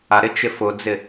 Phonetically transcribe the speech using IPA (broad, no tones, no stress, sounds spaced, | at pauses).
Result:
a ɾ ɪ t͡ʃ ɪ f ʊ d͡z ɪ